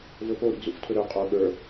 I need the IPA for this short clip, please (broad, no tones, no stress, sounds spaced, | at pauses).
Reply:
v ɵ p o ɾ ḭ ɡ z ṵ f tʰ ɵ ɾ ə˞ qʼ o ɠ ə˞